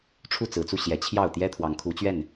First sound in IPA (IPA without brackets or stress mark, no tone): ʈ͡ʂʰ